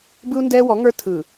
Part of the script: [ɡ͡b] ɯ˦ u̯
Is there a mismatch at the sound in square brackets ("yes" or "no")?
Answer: yes